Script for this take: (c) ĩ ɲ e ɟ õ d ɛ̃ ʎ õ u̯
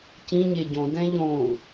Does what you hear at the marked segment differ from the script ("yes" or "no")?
no